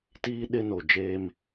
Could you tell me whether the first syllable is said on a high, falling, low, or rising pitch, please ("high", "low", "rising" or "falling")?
high